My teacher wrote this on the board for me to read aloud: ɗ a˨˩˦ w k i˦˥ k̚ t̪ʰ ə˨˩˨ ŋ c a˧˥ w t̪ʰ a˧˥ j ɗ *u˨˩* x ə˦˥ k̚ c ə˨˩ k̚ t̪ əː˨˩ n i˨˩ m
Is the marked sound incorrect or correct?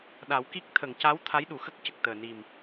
correct